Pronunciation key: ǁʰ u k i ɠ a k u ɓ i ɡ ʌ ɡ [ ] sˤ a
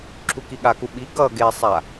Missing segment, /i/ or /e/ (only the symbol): e